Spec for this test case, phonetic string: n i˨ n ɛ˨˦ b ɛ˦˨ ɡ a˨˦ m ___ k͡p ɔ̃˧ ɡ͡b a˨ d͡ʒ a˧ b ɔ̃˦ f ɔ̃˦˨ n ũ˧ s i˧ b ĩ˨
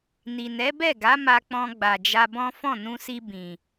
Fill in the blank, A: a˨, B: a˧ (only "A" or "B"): B